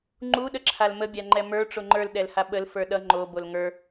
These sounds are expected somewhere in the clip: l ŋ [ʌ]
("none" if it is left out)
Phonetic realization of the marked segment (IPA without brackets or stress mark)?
ə˞